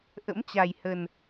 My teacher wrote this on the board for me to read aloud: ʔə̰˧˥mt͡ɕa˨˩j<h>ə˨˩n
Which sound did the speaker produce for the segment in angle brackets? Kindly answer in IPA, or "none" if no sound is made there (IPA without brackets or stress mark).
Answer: h